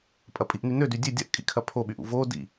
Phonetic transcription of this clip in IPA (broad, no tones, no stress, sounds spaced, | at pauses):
pʼ ɐ pʼ i ʔ n y n ø d y dʲ ø dʲ ɐ ʔ kʼ ḭ kʰ ɐ pʰ o ɓ y ʔ ṵ v o d ḭ